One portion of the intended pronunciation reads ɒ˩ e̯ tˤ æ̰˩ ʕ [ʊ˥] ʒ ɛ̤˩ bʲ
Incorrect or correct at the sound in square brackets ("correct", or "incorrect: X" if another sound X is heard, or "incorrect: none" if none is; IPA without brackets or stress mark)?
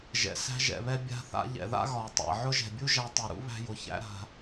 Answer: correct